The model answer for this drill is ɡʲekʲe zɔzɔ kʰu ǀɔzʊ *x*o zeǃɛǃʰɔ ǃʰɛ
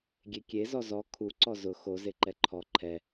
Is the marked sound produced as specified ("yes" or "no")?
yes